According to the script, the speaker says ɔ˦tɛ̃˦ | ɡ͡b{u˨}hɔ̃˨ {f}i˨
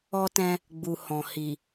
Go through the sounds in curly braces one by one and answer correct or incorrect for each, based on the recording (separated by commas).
correct, incorrect